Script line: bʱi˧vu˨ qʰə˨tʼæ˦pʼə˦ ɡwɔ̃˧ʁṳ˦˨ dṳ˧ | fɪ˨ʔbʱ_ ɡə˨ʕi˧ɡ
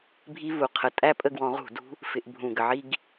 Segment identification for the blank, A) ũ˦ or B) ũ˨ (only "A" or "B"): B